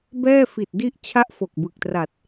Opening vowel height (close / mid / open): mid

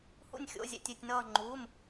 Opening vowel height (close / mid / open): close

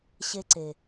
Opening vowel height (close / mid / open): mid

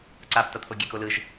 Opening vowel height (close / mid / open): open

